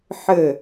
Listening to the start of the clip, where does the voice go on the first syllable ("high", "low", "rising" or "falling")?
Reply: falling